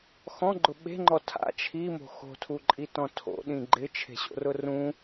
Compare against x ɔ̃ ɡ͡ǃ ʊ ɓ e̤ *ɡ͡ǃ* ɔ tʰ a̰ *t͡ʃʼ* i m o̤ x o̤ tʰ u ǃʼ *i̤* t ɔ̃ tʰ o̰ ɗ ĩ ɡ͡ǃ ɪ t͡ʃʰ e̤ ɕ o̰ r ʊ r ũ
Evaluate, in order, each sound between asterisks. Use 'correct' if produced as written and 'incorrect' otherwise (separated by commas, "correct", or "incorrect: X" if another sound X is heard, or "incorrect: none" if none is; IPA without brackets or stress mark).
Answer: incorrect: ŋ͡ǃ, incorrect: t͡ʃʰ, incorrect: i